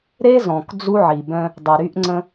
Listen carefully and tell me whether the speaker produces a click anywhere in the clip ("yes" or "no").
yes